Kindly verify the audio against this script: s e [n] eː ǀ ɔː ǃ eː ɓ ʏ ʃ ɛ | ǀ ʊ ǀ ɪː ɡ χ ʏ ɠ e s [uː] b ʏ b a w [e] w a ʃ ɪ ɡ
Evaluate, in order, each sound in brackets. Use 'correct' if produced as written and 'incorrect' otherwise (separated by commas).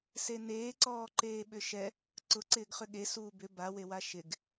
correct, correct, correct